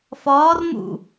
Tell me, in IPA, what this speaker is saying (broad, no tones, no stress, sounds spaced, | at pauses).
f ɒː r m ṵ